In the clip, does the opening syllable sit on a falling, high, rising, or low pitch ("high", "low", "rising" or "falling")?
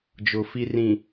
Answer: low